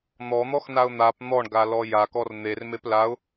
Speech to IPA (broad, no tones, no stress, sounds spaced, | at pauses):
n̪ ɔ n̪ ɔ x n a ʊ̯ n̪ a p n̪ ɔ ɳ ɡ a l ɔ j a k ɔ r n̪ e r m e p l a ʊ̯